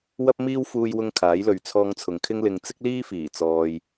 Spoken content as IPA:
wɐ˥p̚miː˥w fuː˧jwʊ˧ŋ kʰaː˨˥jlɵ˨ɥ t͡sʰɔː˧ŋt͡sʰʊ˨ŋkʰɪ˥ŋ lɪ˧ŋ t͡sɪ˥k̚liː˥fiː˨˩ t͡sɔː˧j

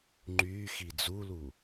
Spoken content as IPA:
ŋ͡ǃyːxi d͡zulu

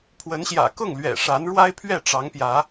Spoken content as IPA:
pʰwə˨˦nɕjä̰˨˩kʊ˥˨ŋ lɥɛ̰˨˩ʂa˨˦nɻwa˦ɪ̯ pʰɥɛ˥˨ʈ͡ʂɑ˨˦ŋpjä˨˦

